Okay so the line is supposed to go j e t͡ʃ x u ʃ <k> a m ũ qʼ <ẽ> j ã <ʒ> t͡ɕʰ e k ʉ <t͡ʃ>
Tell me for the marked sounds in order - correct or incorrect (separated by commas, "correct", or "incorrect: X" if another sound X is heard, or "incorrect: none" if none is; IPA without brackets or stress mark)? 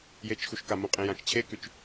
correct, correct, incorrect: t͡ʃ, correct